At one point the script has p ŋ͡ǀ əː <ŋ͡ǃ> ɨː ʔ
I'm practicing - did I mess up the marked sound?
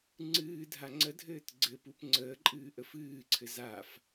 yes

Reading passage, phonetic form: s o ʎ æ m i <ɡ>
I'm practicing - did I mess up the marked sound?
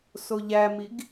no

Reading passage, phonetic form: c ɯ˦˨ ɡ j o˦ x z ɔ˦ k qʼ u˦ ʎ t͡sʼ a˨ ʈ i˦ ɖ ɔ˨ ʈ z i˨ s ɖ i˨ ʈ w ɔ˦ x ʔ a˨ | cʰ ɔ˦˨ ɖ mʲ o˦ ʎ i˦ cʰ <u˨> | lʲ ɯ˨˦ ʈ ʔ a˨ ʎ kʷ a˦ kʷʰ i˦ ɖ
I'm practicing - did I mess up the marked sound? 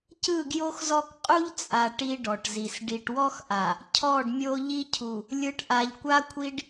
no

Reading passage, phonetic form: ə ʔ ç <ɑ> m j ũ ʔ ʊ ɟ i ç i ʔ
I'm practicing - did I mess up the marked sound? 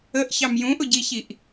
no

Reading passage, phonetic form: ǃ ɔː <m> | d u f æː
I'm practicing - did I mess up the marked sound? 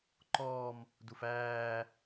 no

